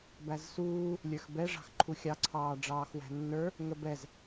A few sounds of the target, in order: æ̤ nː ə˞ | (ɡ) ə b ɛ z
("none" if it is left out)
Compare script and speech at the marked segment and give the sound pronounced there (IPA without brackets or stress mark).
ŋ